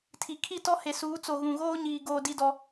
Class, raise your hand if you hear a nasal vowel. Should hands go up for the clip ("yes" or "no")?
yes